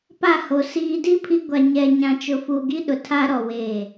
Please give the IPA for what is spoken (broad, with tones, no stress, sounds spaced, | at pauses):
p a˦˨ h o˨ s iː˨ d i˦ pʰ i˦ ɡʷ a˨ ɲ ɛ˨ ɲ ã˨ t͡ʃ ʊ˨ f u˨ ɡ i˦ ɗ ʊ˨ tʰ a˦ ɾ ɔ˨ w eː˦˨